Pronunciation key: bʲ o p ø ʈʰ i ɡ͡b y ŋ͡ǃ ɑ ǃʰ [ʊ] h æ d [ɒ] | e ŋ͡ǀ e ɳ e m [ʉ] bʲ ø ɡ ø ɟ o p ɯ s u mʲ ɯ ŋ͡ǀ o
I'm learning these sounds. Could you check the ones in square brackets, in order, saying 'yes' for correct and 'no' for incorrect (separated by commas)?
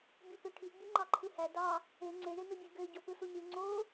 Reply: no, no, no